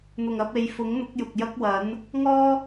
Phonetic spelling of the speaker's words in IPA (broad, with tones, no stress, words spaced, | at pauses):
n̪ʊ˨˩ŋɐ˧p̚ e˨˧jfʊ˨˥ŋn̪ʊ˨˥k̚ jʊ˨k̚jɐ˥k̚wɐ˨˥n | ŋɔː˥